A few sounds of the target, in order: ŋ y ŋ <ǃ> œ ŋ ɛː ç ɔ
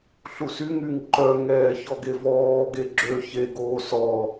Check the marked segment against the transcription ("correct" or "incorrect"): correct